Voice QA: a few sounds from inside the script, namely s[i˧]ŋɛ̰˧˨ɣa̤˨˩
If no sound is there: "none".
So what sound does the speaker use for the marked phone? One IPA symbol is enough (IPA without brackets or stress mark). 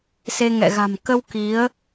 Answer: e˧